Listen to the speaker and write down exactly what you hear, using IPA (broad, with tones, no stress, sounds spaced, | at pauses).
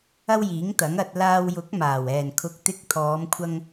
ɐ˥ w j iː˨˥ ŋ t̪ ɐ˨˥ ŋ ɐ˧ t̚ l aː˧ w j ʊ˨˥ k̚ m aː˨˩ w ɛː˨˩ n kʰ ʊ˨ k̚ t̪ ɪ˧ k̚ t̪ʰ ɔː˨˧ m kʷʰ ɐ˧ ŋ